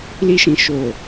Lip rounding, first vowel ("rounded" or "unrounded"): unrounded